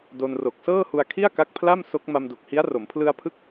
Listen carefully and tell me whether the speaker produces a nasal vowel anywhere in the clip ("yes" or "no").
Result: no